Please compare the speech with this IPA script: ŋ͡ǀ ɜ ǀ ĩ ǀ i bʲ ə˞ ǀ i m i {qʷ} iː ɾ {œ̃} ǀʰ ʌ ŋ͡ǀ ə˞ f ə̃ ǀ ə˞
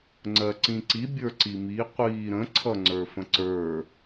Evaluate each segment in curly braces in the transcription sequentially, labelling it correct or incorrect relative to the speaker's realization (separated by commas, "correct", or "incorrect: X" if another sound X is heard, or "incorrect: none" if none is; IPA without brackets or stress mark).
correct, incorrect: ə̃